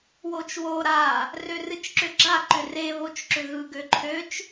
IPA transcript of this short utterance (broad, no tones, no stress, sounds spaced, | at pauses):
w o t͡ʃ w o ɾ a | r ø r ɨ t͡ʃ ǁ ʏ ɡ͡ǁ a ǃ ʏ r e β o t͡ʃ ǁ ʏ ɣ ɯ ɡ ø ǃʰ ø t͡ʃ